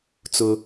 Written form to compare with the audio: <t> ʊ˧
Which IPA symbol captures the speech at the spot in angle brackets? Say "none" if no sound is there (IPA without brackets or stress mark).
t͡s